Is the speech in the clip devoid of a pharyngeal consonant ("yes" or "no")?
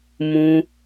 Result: yes